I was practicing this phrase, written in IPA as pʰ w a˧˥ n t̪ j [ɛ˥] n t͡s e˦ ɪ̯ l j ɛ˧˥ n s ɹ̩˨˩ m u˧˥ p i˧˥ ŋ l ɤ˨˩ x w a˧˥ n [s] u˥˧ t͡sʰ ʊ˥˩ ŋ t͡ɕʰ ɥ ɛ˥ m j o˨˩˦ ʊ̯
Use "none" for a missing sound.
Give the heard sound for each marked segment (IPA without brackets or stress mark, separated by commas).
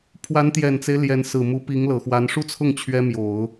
ɛ˨˩, ʂ